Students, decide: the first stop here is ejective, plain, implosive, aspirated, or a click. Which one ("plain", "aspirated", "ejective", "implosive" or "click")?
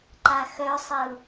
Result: click